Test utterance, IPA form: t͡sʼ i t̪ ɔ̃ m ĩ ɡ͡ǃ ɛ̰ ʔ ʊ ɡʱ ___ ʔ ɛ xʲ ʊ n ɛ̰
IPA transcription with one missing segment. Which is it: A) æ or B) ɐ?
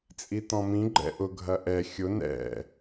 B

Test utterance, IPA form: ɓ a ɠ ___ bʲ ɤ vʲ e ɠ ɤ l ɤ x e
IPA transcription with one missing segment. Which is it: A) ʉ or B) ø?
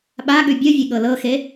A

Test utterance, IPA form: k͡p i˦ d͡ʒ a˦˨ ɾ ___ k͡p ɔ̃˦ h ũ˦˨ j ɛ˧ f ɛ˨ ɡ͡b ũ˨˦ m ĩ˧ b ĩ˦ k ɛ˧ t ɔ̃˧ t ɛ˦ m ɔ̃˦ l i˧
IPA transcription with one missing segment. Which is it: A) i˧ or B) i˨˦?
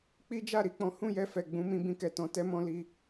A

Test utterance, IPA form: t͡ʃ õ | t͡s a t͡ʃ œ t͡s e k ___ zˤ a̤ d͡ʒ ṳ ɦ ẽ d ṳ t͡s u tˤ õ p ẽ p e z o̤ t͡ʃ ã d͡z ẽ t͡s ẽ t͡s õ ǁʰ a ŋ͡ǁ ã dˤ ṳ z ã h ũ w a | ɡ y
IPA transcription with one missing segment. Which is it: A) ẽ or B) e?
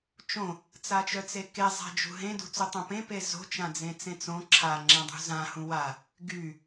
B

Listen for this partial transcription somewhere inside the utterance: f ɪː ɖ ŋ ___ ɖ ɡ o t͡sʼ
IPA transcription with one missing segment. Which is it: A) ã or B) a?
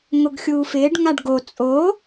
B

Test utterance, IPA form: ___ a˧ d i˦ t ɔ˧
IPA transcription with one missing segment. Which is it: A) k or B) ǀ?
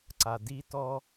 B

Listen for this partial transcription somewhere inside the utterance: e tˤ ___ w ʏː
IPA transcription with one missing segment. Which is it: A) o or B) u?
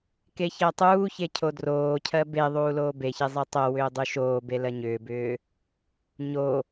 A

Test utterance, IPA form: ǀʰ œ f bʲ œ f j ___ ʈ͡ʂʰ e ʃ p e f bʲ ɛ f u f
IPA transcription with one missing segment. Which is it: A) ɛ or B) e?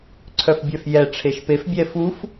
A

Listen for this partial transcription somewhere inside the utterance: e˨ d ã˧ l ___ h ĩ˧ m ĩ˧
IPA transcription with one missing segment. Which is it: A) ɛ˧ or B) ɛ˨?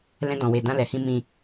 B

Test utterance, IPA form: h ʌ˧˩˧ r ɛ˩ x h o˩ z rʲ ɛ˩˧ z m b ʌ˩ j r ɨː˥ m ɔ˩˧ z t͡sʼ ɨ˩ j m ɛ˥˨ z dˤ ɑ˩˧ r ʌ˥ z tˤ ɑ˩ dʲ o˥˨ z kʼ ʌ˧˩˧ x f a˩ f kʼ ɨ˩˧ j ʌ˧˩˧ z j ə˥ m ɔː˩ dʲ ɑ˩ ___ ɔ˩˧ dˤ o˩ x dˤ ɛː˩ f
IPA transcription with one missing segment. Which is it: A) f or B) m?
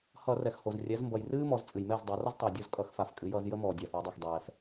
A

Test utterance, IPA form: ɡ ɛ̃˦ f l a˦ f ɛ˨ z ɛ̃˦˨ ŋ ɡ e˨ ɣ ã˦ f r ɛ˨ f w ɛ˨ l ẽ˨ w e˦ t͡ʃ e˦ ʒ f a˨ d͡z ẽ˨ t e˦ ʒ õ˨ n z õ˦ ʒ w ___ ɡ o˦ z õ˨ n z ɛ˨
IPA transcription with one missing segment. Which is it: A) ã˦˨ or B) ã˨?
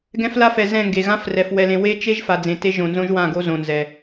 A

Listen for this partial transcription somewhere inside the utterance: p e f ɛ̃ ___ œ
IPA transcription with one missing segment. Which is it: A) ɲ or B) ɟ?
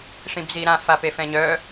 A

